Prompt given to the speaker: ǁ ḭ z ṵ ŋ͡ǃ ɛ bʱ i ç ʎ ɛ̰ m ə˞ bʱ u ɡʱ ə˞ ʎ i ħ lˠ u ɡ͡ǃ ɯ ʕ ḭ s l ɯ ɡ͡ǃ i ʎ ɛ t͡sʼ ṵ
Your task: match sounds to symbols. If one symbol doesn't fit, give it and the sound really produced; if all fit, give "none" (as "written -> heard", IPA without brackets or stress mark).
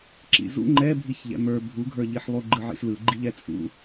none